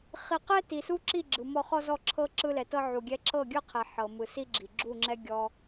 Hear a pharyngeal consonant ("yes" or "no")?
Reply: yes